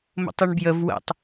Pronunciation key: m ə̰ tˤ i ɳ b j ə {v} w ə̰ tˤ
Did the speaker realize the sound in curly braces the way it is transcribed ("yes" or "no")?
yes